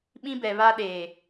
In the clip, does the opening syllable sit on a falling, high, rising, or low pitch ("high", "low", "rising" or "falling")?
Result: high